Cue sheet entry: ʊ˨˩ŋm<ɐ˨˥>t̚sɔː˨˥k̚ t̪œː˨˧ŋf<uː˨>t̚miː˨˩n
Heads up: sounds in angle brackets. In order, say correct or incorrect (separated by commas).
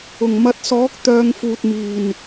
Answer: correct, correct